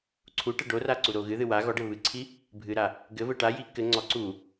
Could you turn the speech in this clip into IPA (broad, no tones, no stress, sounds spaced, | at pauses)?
ǀʰ u ʈ ɘ ɖ o r a ǀ u ɾ o ɣ ɨ ð ɨ w a ɣ ɔ ɖ ɘ β ɨ ǀʰ i | bʱ ɨ ɾ a | ɡ ɘ v ɘ ʈ a j i k ɘ ŋ͡ǀ ɔ ǀ u